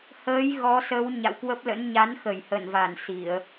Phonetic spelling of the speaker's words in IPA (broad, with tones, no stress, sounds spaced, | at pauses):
h əː˨˦ j ɣ ɔ˨˦ s ə˨˦ w ɲ a̰˧˨ w k w ə˦˥ p̚ l ə̰˧˥ n ɲ a˨˦ n x ə˧˩ j h ə˧˩ n v a˧˩ n s i˧˩˨ ə̯